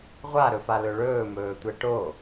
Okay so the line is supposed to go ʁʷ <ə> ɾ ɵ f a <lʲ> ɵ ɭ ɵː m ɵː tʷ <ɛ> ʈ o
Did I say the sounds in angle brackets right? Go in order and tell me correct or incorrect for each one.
incorrect: a, incorrect: l, correct

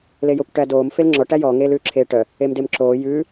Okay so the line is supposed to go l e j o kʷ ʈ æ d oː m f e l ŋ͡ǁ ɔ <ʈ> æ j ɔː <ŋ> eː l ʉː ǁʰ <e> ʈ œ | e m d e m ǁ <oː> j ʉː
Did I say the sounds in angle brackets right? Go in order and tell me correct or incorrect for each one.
correct, correct, incorrect: eː, correct

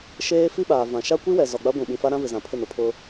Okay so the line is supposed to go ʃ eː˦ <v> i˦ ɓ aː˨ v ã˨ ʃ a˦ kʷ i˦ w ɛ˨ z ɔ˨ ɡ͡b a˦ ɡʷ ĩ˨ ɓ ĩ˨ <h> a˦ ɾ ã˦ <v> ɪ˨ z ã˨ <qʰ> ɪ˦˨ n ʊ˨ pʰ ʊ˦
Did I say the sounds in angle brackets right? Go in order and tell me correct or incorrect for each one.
incorrect: f, incorrect: f, correct, incorrect: pʰ

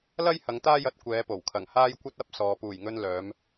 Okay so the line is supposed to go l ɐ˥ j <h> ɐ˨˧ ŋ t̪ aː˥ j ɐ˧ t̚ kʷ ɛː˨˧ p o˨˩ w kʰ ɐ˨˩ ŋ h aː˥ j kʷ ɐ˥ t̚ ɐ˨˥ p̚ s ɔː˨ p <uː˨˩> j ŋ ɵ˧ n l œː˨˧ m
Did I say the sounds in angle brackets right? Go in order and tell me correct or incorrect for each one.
correct, correct

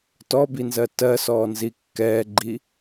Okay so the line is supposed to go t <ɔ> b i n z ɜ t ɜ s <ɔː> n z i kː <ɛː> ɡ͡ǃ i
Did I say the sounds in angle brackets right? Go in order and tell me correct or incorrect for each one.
correct, correct, correct

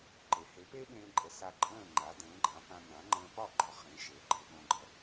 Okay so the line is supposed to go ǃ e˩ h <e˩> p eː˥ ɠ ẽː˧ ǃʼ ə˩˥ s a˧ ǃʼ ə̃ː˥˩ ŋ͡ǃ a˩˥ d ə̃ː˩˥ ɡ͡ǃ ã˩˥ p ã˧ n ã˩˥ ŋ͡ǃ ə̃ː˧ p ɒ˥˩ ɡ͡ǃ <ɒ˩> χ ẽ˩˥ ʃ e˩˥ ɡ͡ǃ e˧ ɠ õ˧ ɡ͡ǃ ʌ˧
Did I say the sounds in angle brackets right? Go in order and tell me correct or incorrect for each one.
incorrect: e˩˥, incorrect: ɒ˧

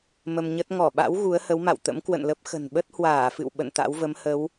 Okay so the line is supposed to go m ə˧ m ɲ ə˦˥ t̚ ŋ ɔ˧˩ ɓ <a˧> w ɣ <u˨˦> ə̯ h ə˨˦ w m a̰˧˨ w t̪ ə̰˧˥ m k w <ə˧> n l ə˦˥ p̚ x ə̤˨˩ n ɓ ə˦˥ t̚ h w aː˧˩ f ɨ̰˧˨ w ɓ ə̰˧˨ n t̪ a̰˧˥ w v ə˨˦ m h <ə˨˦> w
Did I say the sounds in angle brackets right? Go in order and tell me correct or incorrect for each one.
incorrect: a̰˧˥, correct, incorrect: ə̰˧˨, correct

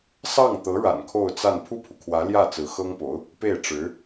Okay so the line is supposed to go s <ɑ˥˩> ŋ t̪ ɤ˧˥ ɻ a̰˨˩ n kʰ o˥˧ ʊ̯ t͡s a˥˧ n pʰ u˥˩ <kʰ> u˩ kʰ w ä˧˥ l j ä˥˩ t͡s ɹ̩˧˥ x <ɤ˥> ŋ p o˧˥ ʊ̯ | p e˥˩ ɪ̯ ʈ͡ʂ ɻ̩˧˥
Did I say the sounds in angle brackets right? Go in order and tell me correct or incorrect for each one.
correct, incorrect: pʰ, correct

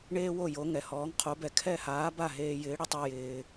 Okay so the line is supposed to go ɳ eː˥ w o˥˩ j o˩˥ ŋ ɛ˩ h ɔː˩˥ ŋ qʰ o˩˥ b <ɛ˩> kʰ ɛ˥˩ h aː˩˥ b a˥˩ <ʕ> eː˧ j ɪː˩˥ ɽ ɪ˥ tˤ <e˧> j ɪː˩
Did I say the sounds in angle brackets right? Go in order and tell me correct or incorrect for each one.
correct, incorrect: ɦ, correct

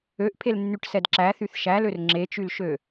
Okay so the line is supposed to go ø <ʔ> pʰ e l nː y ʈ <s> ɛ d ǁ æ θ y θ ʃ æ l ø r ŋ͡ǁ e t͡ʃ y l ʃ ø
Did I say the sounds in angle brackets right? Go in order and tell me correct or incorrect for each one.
correct, correct

